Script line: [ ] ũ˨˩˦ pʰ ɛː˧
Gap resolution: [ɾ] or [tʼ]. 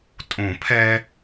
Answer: tʼ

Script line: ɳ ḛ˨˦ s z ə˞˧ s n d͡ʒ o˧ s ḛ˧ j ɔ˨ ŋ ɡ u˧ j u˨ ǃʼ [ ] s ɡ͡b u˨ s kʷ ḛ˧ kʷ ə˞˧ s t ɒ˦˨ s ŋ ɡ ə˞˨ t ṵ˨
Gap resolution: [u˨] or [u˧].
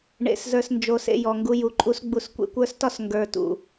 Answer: u˧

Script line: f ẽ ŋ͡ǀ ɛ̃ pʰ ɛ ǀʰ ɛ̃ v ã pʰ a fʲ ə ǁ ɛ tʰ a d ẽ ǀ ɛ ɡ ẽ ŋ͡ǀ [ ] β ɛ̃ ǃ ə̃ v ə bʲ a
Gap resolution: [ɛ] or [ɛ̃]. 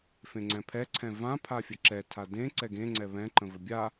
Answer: ɛ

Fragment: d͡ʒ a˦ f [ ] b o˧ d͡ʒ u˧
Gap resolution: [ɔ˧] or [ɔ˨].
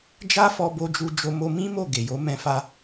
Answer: ɔ˧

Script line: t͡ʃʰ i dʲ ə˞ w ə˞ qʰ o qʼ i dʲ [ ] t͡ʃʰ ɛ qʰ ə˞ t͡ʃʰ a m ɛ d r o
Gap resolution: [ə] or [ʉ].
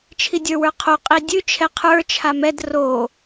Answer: ʉ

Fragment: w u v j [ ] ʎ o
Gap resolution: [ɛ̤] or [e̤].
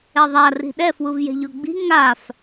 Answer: ɛ̤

